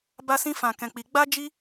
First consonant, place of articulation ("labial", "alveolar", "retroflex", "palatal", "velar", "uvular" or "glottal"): labial